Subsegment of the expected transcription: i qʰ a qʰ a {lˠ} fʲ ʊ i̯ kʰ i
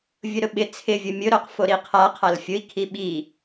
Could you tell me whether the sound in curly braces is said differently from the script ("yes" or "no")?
yes